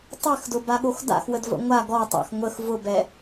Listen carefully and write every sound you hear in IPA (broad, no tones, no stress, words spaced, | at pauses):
tˤɛxdʊbaɠox da̰xwədvə̰ ŋʷa ɡɔtˤa̰x ŋʷəx vʊbɛ